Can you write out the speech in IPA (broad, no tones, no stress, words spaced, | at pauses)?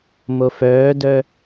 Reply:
mofœːdœ